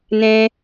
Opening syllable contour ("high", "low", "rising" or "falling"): high